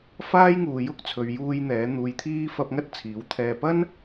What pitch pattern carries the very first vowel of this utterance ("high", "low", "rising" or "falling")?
high